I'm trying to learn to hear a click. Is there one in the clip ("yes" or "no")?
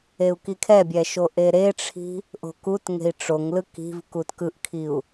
no